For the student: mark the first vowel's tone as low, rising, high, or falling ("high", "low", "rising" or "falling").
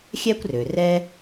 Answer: high